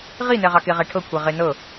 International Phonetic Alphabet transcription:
ʁ i n ɛ ʁ ɑ k e ʁ ɛ ʈʰ ɤ kʷʰ e ʁ e n ɤ

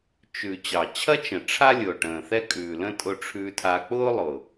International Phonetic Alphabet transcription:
t͡ʃ ʉ˨ t͡ɕ ɑ˨ t͡ɕʰ ɐ˦ t͡ʃ ə̃˨ ʈ͡ʂʰ a˦ lʲ ʊː˨ ʈ ə̃ː˨ θ ɛ˦ kʼ ʉː˨ l ə̃˦ tʼ ʊ˧ ʈ͡ʂʰ ʉː˧ tʰ a˧ k͡p ʊː˦ lˠ ʊ˨

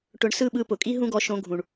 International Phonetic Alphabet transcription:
ʈ ʊ˧ ɳ s ɯ˦˨ ɓ ɯ˧ p ʊ˨ kʼ i˦ ɦ ũ˦ ɡ ɔ˧ ʃ õ˧ ɡʱ ũ˨ ɳ

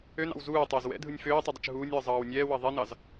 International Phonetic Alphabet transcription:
ø n ɑ̰ w z uː tˤ ɪː z w ɛ̰ dʱ ɯ nʲ f øː tˤ ɯ dˤ ɪ t͡ʃ ɦ uː nʲ w ɯ zˤ ɑː w nʲ ɛː w ɑ ðˤ ɛ n ɑ z

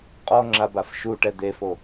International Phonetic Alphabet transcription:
qʼ ɔ ŋ͡ǁ a b a f ʃ u ʈ ɛ d̪ e f o

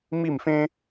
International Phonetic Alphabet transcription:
m i˥˧ m f ẽ˥

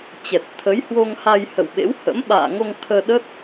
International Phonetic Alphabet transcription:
t͡ɕ ɛ˨˩ t̚ t̪ʰ ə˨˦ j h w o˧ ŋ h a˧ j h ə̰˧˨ w ɓ ḛ˧˥ w h ə̰˧˥ m ɓ a̰ː˧˨ ŋ o˧ ŋ t̪ʰ əː˧ ɗ ə˦˥ t̚

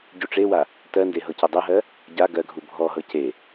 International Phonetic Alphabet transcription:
ɟ u ʈ͡ʂ e w a | t ɜ n d e ɦ ɤ c ɤ dˤ ɜ ɦ ɜ | ɟ a ɡ ɜ ɡʱ u bʱ ɔ ɦ ɤ c e

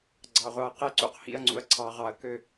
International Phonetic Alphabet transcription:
ɡ͡ǀ ɑ˩ ʁʷ ɑ˩ ɐ̯ q e˧˩ ǀ ṵ˧ q h ḭ˧˩ ɐ̯ ŋ͡ǀ ṵ˩ ɐ̯ ǀʰ ɑ˩ ʁ ɑ˩ ɐ̯ k ø˧˩

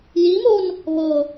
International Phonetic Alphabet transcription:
j i m o n | β ɤ

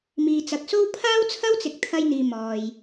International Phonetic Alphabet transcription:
m iː˨ t͡s ɐ˨ k̚ s o˥ w pʰ aː˥ w t͡sʰ ɐ˥ w t͡s ɪ˨ k̚ t̪ʰ ɐ˧ j n̪ iː˨ m ɔː˨ j

